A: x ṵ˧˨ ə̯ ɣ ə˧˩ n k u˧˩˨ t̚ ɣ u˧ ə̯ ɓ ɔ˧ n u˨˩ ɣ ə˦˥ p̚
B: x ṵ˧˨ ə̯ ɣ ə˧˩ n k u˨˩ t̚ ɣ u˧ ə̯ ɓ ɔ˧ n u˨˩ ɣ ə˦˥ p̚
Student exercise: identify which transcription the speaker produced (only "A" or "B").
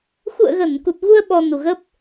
B